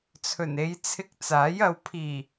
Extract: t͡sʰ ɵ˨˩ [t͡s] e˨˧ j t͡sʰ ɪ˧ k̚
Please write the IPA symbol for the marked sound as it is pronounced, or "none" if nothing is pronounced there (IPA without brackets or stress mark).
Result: n